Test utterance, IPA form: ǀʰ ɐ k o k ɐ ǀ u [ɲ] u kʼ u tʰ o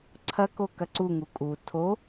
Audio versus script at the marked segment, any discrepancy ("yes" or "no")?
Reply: yes